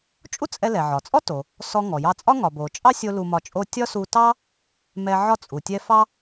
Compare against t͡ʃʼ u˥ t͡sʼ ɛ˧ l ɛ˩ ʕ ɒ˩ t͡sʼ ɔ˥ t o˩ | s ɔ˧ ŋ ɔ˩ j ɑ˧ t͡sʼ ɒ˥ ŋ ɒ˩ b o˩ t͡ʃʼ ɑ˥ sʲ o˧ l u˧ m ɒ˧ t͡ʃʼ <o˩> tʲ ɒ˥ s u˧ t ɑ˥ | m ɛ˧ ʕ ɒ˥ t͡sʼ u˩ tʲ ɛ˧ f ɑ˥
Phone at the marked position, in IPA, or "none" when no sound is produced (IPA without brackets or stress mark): o˥